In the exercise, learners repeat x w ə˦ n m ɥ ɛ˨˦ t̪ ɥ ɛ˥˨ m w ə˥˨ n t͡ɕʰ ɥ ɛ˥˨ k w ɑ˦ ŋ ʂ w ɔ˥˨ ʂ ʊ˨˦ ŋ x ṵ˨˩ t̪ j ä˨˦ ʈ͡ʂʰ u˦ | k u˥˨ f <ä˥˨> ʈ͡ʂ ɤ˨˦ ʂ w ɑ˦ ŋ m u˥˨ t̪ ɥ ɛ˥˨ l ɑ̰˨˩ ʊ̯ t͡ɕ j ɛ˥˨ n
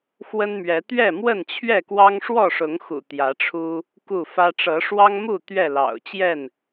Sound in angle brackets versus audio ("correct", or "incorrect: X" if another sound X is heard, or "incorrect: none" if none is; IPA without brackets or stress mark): incorrect: ä˦